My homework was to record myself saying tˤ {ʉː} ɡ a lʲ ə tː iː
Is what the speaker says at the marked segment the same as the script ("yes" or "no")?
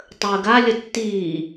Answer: no